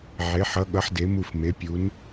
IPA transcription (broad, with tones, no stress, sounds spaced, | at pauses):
ʕ e˨˥ ħ ʌ˨˥ ɠ ʌ˨˥ ħ d e˨˥ m u˦˨ f m e˨˥ pʲ u˨˥ n